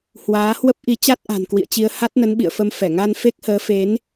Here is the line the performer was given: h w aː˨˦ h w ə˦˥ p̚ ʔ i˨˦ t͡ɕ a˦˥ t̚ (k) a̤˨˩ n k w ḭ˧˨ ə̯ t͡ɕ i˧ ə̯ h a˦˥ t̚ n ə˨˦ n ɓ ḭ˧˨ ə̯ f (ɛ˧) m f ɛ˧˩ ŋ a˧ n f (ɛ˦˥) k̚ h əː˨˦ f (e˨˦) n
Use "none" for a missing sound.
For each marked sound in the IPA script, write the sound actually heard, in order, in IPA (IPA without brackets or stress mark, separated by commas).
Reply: ʔ, ə˧, e˦˥, e˨˦